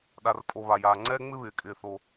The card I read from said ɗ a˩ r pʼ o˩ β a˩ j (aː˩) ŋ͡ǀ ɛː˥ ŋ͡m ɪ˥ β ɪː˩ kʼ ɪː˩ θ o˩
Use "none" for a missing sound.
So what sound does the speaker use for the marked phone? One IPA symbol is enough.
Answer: aː˩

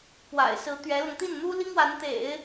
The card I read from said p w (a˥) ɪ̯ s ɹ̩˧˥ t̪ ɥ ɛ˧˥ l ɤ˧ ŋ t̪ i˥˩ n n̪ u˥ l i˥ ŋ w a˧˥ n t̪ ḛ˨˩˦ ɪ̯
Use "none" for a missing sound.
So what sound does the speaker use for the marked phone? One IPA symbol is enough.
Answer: a̰˨˩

